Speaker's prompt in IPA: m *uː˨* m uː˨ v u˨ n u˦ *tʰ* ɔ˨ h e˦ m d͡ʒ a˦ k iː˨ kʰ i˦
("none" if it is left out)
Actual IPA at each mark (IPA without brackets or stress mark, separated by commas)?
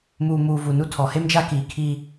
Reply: uː˨, tʰ